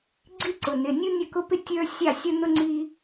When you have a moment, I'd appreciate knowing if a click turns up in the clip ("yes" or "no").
yes